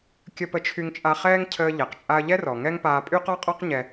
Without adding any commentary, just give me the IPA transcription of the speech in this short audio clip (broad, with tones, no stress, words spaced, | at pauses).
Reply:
kʲə˧pə˧t͡ʃʰy˧ŋt͡ʃʼa˧ χɛː˥ŋcʰəː˧ʎɛ˩q t͡ʃʼa˧ɐ̯ʎɛ˥rɔ˩ ŋɛ˥ŋpaː˧ pʼy˥qɔ˥qʼɔ˥q ɲɛ˥